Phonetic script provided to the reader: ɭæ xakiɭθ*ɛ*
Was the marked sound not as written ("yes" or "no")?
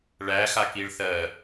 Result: yes